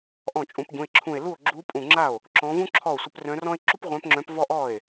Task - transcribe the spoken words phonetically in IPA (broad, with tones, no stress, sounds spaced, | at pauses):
ʔ ɔ̃˥˩ t͡ʃʼ ũ˧˥ p ɟ ũ˩˧˩ e̯ ǁʰ ũ˧˩ e̯ l u˥˩ o̯ ɡ͡ǁ u˧˥ pʼ ũ˧˩ ŋ͡ǁ a˥˩ o̯ | ǁ ɔ̃˧˥ v ũ˥ ǁʰ ɔ˥˩ o̯ sʷ ə˧˥ p r œ̃˧˥ r ɔ̃˥ e̯ ǁ u˥ p ʁʷ œ̃˧˥ p ŋ͡ǁ œ̃˧˥ p v ɔ˥ ʔ ɔ˥˩ e̯